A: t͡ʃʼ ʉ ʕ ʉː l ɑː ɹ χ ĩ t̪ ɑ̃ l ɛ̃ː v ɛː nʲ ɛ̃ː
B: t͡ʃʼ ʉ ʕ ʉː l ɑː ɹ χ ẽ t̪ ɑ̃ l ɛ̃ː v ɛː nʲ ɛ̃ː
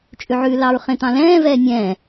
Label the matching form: B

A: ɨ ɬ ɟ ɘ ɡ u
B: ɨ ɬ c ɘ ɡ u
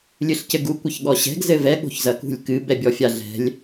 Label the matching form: B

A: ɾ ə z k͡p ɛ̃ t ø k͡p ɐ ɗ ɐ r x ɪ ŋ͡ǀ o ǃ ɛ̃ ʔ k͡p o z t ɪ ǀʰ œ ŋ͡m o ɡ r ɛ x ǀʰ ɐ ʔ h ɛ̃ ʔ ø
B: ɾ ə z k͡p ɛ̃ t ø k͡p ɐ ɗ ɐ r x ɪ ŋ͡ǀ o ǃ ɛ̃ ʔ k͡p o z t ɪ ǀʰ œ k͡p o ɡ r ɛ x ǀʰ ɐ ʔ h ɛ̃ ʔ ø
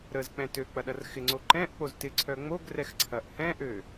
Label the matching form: A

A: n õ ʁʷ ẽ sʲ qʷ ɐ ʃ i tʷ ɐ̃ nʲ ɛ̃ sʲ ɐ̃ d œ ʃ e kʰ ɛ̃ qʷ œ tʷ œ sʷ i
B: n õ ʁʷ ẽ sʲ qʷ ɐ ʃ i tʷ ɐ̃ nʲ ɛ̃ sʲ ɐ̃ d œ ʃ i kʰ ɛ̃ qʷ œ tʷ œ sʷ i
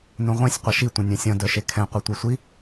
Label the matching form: A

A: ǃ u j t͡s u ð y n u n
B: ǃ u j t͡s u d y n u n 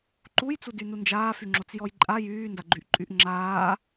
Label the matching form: B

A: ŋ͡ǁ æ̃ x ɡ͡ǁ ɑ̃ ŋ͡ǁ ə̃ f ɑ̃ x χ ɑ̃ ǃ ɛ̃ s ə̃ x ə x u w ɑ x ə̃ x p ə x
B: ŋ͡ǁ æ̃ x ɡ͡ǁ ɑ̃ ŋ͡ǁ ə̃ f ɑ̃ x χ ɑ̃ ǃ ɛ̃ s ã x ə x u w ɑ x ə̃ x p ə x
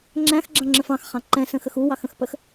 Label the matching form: A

